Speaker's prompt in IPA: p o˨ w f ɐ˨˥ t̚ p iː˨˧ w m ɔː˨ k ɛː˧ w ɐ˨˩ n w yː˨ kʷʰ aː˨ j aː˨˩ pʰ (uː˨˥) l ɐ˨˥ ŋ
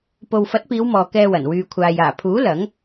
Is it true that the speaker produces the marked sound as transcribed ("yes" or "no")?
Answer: yes